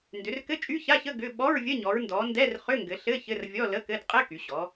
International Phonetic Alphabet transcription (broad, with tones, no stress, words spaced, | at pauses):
ndʏ˩˧rkɘ˧˥˧ t͡ʃʼy˧˥˧ça˧˥˧çə˧˥˧ ɡʏ˧˥˧ ɓɔ˧˥˧ɹvʲə˧˥˧ɲɔ˩˧ɹndɔ˩˧ ndɛ˧˥˧rχʏ˧˥˧ŋɡɘ˩˧ɬɘ˧˥˧ çɘ˧˥˧rvʲɔ˧˥˧lə˧˥˧kɘ˧˥˧d qʼɘ˧˥˧ ky˩˧ɕɔ˩˧